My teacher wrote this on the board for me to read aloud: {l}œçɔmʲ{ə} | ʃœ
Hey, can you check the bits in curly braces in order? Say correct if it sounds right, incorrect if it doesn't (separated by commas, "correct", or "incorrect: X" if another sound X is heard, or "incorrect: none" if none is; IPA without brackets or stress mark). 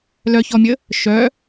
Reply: correct, correct